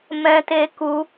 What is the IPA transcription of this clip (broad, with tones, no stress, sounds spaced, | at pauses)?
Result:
m ɛ̃˧ t e˧ k u˧